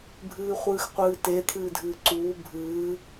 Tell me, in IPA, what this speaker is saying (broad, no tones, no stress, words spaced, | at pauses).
bʱɨːχʷɨːxqʷɨːte t̪ʰɨːdʱɨːǀuː bʱɨː